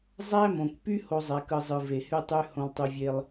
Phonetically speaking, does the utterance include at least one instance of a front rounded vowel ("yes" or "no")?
yes